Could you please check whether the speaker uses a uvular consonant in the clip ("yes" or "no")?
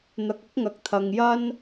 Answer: no